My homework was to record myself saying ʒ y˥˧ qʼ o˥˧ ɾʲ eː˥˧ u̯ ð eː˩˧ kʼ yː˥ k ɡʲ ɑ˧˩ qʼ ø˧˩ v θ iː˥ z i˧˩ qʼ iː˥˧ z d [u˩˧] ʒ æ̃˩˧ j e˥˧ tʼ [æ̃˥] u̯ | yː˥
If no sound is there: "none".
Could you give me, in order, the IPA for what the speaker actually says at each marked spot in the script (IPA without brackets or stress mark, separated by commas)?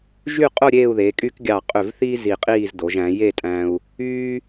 o˩˧, æ̃˧